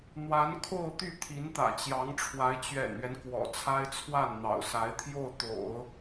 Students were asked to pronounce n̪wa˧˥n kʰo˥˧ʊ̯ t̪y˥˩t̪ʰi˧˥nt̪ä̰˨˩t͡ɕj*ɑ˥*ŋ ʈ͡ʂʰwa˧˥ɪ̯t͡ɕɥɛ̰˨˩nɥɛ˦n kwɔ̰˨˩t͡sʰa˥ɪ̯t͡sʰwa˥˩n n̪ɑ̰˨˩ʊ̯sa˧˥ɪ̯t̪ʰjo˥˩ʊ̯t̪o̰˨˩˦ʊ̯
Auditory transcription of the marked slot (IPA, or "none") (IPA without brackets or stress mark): ɑ˧˥